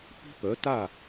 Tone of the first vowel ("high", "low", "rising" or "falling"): high